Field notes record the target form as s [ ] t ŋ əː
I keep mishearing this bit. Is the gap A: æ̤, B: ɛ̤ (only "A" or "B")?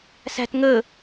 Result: A